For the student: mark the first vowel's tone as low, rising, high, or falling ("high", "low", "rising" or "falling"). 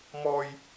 high